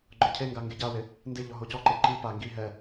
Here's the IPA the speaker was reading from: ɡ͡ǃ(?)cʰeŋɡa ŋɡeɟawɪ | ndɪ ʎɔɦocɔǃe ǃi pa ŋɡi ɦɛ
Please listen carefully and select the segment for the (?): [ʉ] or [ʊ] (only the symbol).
ʊ